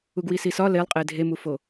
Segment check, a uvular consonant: present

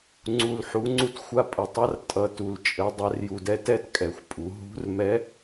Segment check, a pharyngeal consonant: present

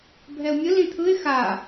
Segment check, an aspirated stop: present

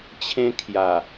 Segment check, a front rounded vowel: absent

